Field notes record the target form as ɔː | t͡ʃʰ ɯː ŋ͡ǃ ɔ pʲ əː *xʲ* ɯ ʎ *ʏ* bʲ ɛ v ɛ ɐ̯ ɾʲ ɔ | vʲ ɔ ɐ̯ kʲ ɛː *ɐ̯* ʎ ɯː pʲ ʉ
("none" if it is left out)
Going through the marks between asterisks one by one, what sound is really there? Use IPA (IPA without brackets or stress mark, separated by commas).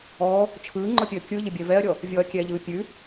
kʲ, ə, none